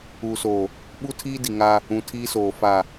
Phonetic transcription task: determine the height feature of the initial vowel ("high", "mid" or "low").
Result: high